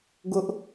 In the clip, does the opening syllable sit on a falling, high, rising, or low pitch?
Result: high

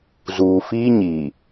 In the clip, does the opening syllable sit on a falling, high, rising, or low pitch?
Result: low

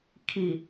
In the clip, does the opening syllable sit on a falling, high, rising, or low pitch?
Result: low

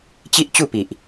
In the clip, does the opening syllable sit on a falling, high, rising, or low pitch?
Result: high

